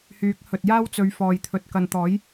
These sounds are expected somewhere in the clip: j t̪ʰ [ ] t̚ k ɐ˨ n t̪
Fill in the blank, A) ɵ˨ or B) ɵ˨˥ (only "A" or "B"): A